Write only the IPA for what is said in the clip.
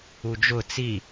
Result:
u d͡ʒ ʊ t͡s i

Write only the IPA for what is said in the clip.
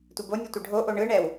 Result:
tʷ e b o nʲ o tʷ ɯ ɖʱ o ʔ o ɳ ɯ ɳ ɛ w

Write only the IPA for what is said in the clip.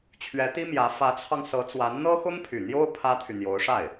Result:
t͡ɕʰ ɥ ɛ˧˥ t̪ i˥ m j ä˧˥ f ä˧˥ t͡sʰ ɑ˧ ŋ s ɤ˧˥ t͡s w a˧˥ n n̪ ɤ˥ x ʊ˥ ŋ pʰ y˨˩ n̪ j o˥ ʊ̯ pʰ ä˥ t̪ʰ y˨ n̪ j o˧˥ ʊ̯ ʂ a˥˩ ɪ̯

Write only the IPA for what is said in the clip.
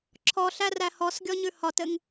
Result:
ǁʰ ɔ ɬ æ r æ h ɔ s ɡʲ ɔ ɲ ʉ h ɒ t ɘ ŋ

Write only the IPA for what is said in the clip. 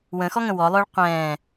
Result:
w ə̃ x ɔ ŋ ə̃ w ɔ lˠ ʏː ɭ qʷ ɛ̃ː

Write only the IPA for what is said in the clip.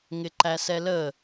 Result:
ŋ ɪ ǃ æ s ɛ l ə

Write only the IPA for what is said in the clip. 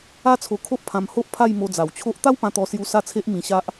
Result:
a˦ t͡sʰ o˧ kʰ o˦ ʔ pʰ ã˧ m h o˦ ʔ pʰ a˥˧ j m o˧ d͡z a˨˩ w t͡ɕʰ o˦ ʔ t̪ a˦ w p ã˧ t̪ ɔ˧ s j u˧ s a˥˧ t͡sʰ e˦ ʔ m ĩ˧ ɕ a˦ ʔ

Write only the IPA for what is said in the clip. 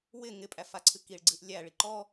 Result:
w ɪ ŋ ɪ pʼ æ f a ǀʰ ɨ k i ɭ ɡ͡ǀ ɨ ʔ lʲ æ ɭ i ǃ ɔ

